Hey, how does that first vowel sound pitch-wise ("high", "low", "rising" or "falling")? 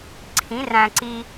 rising